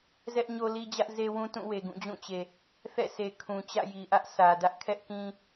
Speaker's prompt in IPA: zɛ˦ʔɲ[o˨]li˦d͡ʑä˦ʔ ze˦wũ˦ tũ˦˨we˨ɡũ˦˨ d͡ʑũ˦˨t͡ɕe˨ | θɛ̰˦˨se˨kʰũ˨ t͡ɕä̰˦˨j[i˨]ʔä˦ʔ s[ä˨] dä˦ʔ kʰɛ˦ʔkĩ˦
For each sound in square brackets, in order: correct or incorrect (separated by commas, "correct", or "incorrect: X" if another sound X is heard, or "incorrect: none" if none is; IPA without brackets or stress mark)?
incorrect: o˦, correct, correct